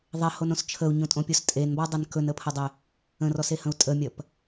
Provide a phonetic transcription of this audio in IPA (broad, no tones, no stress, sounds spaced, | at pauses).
ðˤ e h o n õ s t͡ʃʰ ə u̯ ɲ õ tʼ õ pʲ o s tʼ e n b ɔ dˤ e n k ɵ n ə pʰ ə dˤ e | ə̃ r ɔ s e h ə̃ u̯ tʼ ə mʲ ɐ p